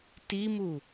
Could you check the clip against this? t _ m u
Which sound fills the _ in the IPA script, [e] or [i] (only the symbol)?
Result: i